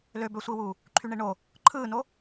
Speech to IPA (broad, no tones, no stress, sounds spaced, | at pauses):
l ø b ø sʷ i w uː | ǃʰ y ɳ e ɳ o | ǃʰ ɯː n o